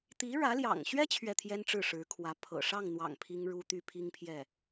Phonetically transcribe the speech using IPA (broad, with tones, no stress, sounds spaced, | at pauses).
t̪ i˧˥ ɻ ä˧˥ l j ɑ̰˨˩ ŋ ɕ ɥ ɛ˥ t͡ɕʰ ɥ ɛ˥˩ t̪ʰ j ɛ˥ n ʈ͡ʂ ɻ̩˥˩ ʂ ɻ̩˧˥ kʰ w ä˧˥ pʰ ɤ̰˨˩ ʂ ɑ˥˩ ŋ n̪ w ɑ̰˨˩ ŋ pʰ i˥ ŋ ɻ u˥ t̪ y˥ pʰ i˥ ŋ pʰ j ɛ˥˩